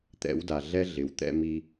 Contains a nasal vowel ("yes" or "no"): no